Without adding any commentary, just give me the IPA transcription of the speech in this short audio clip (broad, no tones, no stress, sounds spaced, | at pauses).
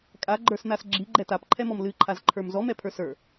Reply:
kʼ a ɡ͡ǃ ə˞ s n a s ɡ͡ǁ i ɡ͡ǃ ɛ t a p ǃʰ ɛ m ɔ m l ɨ ǃʰ a z ǃʰ ə˞ m z ɔ m ɛ pʰ ə˞ s ə˞